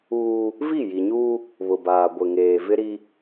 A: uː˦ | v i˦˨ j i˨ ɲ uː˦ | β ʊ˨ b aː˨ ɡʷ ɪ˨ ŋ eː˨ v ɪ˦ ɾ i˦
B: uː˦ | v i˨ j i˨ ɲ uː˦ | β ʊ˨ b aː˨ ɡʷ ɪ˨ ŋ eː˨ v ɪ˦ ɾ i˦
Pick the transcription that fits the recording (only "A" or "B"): A